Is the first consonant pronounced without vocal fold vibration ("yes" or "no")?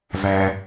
no